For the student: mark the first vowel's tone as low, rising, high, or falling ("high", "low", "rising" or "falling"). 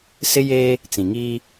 high